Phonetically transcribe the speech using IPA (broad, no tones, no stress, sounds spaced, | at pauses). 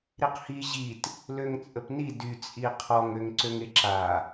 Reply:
ɾ i q h i ʑ i t | l ø ŋ t͡sʼ ə p n i d y t͡sʼ i qʰ ɔ ŋ ø ŋ ǀ ø ŋ e ǁ a